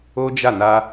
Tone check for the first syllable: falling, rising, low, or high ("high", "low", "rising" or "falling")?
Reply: high